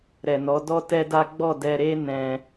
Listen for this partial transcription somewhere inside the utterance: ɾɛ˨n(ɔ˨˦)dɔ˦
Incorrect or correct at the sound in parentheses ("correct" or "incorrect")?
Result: correct